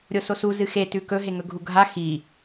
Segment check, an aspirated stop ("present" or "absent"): absent